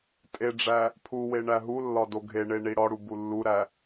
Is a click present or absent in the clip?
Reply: absent